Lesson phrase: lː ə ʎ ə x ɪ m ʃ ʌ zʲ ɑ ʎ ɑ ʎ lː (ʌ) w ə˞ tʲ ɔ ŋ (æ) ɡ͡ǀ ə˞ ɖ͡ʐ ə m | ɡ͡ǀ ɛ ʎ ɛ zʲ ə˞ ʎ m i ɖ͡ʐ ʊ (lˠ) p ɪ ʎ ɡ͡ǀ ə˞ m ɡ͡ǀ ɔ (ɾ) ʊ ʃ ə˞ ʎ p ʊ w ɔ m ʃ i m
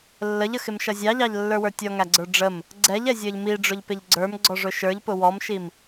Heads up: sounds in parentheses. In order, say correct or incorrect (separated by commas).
incorrect, correct, incorrect, incorrect